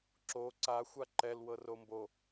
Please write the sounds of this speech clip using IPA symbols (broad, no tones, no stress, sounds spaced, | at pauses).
ǁ o ǀ a xʷ a ǃ ɛ l w ɤ r o m b o